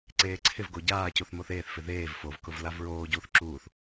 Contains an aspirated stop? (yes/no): yes